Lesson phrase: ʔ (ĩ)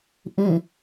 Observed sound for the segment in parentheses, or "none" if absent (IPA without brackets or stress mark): ĩ